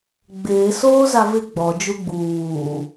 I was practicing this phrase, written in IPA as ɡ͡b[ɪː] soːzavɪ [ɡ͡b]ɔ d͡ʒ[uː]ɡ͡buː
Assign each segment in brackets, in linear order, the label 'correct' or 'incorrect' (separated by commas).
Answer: correct, correct, incorrect